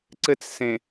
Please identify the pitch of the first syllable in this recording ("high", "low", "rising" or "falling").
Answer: high